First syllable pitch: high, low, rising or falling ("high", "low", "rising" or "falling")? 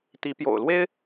rising